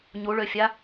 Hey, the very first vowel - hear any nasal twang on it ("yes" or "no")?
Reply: no